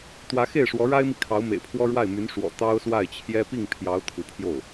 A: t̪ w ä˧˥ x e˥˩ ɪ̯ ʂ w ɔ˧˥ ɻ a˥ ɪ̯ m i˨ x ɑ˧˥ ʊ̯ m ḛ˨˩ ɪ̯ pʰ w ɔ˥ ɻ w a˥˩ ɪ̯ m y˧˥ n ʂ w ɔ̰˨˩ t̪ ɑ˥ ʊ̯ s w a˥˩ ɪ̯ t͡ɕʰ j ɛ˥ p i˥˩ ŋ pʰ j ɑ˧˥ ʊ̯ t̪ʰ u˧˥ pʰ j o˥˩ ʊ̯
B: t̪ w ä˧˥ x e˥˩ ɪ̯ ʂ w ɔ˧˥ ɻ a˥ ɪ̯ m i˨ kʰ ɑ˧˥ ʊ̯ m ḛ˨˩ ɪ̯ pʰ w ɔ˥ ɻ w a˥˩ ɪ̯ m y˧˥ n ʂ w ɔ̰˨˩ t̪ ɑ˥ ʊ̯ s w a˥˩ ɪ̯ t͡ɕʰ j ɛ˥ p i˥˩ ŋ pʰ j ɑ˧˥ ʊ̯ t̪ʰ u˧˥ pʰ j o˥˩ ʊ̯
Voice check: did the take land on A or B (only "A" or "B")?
B